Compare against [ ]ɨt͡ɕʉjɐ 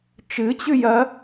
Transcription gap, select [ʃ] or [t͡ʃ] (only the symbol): t͡ʃ